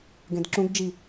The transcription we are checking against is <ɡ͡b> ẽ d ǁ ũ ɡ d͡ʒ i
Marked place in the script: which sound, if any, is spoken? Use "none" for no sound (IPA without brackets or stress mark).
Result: ɡ